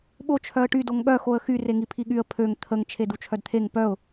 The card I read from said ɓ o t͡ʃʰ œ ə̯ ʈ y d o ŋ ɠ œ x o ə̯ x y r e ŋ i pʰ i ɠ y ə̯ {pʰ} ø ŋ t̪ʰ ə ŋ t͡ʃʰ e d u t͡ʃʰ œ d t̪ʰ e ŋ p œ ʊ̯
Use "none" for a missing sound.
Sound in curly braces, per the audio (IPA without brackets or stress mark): pʰ